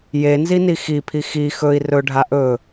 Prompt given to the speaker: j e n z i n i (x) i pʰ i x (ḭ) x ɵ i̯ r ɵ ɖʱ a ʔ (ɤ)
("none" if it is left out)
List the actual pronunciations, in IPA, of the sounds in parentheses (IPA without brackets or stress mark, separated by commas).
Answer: x, i, ɵ